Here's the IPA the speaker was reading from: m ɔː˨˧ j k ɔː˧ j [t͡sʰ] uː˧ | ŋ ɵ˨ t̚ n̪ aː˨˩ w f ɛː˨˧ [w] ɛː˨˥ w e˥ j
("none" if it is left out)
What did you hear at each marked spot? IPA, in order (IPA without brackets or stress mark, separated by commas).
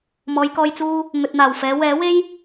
t͡s, w